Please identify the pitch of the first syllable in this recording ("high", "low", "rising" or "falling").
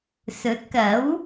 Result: rising